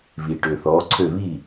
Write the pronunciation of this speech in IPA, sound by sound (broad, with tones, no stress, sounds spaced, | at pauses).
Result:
β i˩ ʈ ʏː˩ θ ɔː˩˥ ǀʰ ø˥˩ β i˥˩